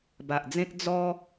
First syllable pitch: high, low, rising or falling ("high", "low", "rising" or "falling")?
low